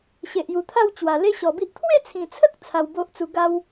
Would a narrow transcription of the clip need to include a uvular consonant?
no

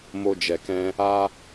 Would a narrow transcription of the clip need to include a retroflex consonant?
no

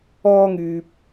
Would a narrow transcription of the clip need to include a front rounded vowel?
yes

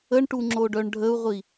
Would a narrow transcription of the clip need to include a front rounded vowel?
yes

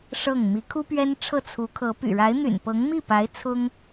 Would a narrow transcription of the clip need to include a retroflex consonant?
yes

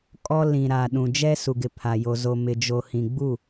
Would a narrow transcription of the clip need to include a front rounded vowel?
no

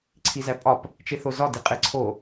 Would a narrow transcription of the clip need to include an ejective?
yes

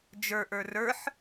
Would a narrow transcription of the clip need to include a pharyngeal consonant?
yes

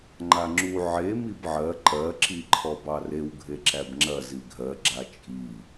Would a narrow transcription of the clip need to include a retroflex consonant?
no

